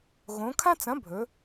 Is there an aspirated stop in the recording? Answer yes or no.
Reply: yes